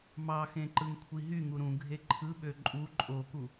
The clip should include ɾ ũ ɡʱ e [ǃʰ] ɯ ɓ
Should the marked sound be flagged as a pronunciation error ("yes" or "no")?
no